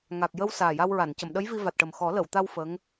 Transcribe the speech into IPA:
ŋa˨˩k̚jə˧w saː˨˩ja˧wɹa˨˩˨n cə˨˩˨mɗə˧˥j vi˧va˨˩t̚ʈə˨˩m xɔ˨˩˦ lə˨˩˨wt̪a˧w fə˧˥ŋ

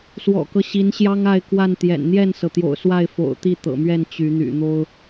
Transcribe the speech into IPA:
swɔ̰˨˩kɤ˦ɕi˨˦nɕjɑ˦ŋ a˥˨ɪ̯kwa˥˨nt̪jɛ̰˨˩n n̪jɛ˥˨nsɤ˩t̪jo̰˨˩ʊ̯ swa˥˨ɪ̯fo̰˨˩ʊ̯t̪i˥˨ t̪ɤ̰˨˩mɥɛ˥˨n t͡ɕy˨˦n̪y̰˨˩n̪o˦ʊ̯

